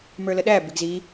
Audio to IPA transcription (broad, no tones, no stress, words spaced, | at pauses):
mə˞ləɗæ bɪɡzi